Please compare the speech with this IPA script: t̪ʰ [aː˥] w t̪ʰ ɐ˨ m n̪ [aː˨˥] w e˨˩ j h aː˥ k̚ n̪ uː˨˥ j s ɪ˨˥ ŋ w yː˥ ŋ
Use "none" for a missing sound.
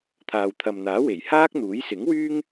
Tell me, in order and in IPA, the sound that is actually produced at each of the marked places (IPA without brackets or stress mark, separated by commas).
aː˨, aː˨˥